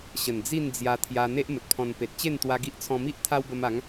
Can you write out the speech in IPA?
ɕ ə˨˩ n d͡z i˥˧ n d͡z j a˧ t̪ʰ j a˧ n̪ e˦ ʔ m ə˨ t̚ pʰ ɔ̃˧ n p e˨ t̚ t͡ɕ e˥˧ n t̪ w a˧ ɡ i˦ ʔ t͡sʰ ɔ̃˧ m i˦ ʔ t̪ʰ a˦ w b ə˧ m a˨˦ ŋ

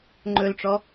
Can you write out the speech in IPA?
ŋ͡ǃ ɵ l ʈ͡ʂ ɔ

